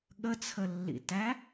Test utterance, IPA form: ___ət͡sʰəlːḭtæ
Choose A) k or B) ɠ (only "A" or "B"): B